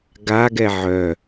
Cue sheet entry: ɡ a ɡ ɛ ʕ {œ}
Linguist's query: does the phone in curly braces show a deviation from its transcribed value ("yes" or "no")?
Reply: no